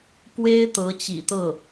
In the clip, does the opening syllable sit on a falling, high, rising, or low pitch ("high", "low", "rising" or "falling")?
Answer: high